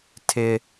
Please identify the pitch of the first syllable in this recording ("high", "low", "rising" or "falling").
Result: high